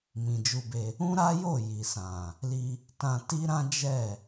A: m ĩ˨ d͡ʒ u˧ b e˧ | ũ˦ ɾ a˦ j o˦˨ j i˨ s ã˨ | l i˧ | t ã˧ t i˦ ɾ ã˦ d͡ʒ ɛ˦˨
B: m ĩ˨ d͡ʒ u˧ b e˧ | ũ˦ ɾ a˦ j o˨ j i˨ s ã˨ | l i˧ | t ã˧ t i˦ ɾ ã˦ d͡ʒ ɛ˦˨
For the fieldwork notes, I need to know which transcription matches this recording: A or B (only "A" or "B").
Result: A